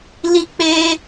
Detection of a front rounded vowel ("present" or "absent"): absent